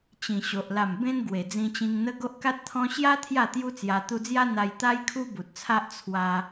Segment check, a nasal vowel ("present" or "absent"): present